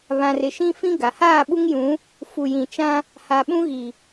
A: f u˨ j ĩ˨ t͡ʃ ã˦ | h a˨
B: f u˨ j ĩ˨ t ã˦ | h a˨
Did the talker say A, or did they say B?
A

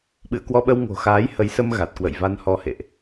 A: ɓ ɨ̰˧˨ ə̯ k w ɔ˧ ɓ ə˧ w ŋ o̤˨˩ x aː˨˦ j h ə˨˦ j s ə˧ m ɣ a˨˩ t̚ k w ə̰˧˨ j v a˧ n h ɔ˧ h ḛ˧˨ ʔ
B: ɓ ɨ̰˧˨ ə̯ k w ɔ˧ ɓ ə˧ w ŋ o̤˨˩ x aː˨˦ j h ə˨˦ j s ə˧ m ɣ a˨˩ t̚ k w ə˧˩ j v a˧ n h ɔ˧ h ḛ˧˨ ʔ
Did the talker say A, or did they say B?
A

